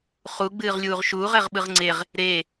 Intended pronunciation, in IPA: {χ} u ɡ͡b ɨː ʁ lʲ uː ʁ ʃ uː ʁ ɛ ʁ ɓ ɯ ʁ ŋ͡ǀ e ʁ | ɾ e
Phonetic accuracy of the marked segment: correct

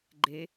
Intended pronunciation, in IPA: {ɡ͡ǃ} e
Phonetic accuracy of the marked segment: correct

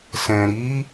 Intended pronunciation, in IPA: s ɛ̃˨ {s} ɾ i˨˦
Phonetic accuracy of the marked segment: incorrect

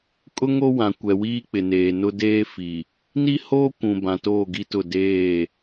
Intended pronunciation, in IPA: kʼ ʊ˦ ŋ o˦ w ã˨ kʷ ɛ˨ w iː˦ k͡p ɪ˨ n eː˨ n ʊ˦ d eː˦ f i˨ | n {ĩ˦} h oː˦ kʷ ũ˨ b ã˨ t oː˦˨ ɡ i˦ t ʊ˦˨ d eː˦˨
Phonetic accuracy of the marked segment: incorrect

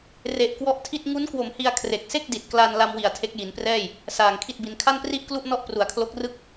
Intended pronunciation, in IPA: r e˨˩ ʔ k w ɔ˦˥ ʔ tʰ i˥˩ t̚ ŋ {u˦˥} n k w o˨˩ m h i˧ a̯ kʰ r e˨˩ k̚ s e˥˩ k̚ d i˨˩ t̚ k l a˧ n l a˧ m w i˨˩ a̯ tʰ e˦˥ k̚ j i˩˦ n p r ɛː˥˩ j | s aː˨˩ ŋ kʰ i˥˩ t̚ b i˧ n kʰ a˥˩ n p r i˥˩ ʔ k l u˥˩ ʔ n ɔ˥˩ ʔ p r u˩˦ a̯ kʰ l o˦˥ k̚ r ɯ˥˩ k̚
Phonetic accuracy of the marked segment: correct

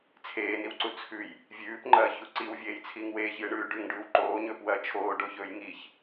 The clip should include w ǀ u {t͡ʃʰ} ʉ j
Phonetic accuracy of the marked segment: incorrect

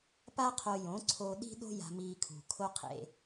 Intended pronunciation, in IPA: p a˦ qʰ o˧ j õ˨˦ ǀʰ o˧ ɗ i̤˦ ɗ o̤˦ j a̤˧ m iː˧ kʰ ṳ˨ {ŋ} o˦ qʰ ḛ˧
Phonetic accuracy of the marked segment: incorrect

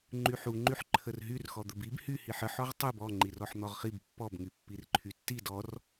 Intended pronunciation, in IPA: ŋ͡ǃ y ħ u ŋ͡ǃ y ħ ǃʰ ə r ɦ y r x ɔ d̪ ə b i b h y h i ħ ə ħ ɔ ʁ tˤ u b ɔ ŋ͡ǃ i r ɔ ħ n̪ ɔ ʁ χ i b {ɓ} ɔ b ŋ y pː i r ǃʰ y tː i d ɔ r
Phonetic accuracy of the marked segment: incorrect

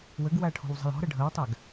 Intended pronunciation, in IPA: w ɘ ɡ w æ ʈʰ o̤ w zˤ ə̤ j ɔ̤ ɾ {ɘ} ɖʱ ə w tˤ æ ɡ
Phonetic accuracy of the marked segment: correct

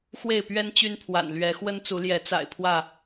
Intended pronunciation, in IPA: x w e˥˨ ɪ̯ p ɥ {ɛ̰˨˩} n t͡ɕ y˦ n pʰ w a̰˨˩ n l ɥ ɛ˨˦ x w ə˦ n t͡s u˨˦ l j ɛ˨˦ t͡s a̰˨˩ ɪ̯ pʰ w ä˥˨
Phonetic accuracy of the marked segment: incorrect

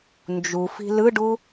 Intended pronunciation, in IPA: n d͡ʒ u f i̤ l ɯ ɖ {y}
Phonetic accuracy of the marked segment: incorrect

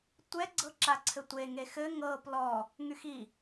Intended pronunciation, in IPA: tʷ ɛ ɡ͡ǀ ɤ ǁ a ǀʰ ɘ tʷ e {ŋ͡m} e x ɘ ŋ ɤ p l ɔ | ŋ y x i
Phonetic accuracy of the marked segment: incorrect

